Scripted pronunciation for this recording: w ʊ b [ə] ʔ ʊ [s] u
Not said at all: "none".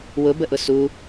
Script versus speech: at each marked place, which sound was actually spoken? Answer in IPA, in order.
ə, s

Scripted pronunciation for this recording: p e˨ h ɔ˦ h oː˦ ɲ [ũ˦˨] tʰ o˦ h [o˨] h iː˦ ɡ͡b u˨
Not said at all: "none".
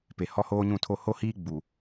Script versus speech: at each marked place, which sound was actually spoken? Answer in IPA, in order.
ũ˦˨, o˦

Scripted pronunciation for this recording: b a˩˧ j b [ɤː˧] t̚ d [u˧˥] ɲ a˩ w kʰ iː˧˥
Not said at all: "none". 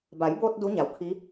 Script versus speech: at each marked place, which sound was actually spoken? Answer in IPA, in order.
oː˧, u˧˥

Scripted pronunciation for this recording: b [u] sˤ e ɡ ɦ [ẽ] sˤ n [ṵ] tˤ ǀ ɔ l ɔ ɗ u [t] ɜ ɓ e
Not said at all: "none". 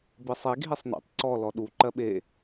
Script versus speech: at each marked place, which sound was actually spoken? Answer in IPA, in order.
ɯ, e, ṵ, ǃ

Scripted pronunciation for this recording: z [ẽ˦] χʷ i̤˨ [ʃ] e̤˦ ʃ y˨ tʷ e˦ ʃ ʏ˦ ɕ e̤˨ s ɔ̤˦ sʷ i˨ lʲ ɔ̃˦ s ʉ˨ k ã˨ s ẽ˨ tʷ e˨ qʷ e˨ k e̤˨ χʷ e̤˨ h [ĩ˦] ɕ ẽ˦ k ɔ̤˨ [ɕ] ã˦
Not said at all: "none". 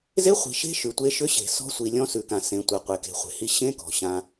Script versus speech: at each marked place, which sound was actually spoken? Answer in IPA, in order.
e˦, ʃ, i˦, ɕ

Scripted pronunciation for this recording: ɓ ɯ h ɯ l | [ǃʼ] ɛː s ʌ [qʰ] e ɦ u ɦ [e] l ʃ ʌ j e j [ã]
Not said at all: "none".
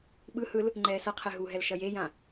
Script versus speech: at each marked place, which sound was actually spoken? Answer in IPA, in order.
ŋ͡ǃ, qʰ, ɛ, ã

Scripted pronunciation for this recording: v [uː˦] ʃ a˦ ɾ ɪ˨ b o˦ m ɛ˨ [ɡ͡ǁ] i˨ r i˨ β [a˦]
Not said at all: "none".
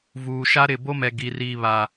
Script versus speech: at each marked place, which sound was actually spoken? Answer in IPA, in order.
uː˨, ɡ, a˨

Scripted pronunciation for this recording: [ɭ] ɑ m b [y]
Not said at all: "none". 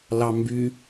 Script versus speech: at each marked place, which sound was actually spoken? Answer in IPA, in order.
l, y

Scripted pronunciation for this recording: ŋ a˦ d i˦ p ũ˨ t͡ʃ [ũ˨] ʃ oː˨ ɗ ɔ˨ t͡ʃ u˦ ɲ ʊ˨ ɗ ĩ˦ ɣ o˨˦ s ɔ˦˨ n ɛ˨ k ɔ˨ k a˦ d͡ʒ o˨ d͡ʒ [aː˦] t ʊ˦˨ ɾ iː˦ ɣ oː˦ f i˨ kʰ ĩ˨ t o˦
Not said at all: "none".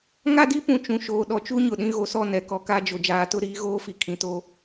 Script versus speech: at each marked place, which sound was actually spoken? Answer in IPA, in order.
ũ˨, aː˨

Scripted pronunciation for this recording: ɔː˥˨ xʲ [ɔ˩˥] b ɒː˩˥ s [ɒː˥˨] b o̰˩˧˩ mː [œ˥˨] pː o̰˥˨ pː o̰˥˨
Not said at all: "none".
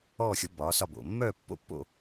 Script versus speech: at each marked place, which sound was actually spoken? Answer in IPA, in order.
ɔ˩˥, ɒ˥˨, œ˥˨

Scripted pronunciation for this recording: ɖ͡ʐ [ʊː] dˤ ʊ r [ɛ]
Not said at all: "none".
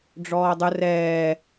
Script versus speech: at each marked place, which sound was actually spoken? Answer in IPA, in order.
ɔː, ɛː

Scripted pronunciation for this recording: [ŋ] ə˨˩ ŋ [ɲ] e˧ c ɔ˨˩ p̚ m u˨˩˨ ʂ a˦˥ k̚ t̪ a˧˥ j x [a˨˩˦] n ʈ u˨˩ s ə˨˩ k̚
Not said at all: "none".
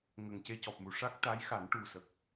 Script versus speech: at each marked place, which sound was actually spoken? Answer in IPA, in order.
ŋ, c, a˨˩˦

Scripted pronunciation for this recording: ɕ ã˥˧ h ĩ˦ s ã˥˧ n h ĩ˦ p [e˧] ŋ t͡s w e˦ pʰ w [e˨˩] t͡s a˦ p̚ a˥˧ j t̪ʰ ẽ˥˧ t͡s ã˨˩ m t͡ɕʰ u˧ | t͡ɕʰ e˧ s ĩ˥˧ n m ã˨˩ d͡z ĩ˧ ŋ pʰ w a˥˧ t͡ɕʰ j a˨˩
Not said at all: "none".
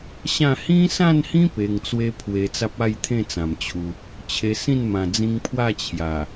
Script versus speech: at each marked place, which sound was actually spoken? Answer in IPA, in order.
e˧, e˧

